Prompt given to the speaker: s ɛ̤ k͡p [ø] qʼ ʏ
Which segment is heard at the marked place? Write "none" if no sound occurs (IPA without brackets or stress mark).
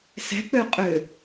ø